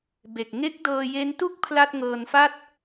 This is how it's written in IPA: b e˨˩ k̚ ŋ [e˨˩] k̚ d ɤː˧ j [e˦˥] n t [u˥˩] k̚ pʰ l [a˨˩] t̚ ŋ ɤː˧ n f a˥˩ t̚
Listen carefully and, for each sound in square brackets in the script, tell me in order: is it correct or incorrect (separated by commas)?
incorrect, correct, correct, incorrect